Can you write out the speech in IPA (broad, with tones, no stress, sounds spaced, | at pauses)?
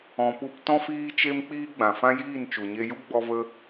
ɔ̃˨ p u˧ p t ɔ̃˦ f iː˦ t͡ʃ e˦ m k͡p iː˦ ɡ͡b ã˨ f ã˦ j iː˦˨ n t͡ʃ u˨ ɲ e˧ j u˦ ɡ͡b ɔ˦ v ə˦